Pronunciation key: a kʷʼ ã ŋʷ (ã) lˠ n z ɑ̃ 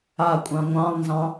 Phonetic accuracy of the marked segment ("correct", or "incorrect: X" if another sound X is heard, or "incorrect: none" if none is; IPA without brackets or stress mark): incorrect: ɑ̃